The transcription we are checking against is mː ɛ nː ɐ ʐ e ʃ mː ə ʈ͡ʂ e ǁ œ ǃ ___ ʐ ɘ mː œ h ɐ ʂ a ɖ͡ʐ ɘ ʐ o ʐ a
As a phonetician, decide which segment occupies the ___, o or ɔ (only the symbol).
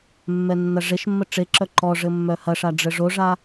ɔ